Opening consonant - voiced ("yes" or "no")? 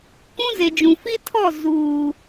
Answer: no